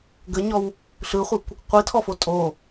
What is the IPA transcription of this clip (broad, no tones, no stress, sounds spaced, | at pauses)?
ɡ ə ɲ ɔ w | ɬ ɯ χʷ ɯ kʷ | qʷ i tʰ ɔ f o tʼ o